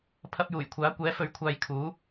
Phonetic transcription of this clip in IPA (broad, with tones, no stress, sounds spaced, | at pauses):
pʰ ɐ˧ p̚ j uː˨˩ j kʷʰ aː˨˥ kʷ ɛː˨˥ f ɵ˨ ɥ kʷʰ aː˨ j kʰ uː˨˥